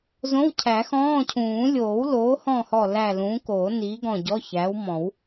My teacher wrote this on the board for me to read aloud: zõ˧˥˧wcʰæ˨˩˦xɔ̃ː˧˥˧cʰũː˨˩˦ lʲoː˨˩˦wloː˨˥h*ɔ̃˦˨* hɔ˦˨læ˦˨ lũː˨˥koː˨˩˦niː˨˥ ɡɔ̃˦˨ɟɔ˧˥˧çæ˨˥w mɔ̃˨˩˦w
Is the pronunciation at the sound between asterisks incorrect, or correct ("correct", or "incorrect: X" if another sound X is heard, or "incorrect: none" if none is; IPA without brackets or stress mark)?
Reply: correct